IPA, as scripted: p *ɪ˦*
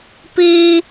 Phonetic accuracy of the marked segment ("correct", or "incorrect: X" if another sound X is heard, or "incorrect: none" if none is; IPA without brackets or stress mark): incorrect: i˦